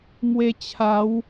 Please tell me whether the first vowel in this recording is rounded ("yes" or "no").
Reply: no